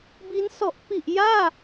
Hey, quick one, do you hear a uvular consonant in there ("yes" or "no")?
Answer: no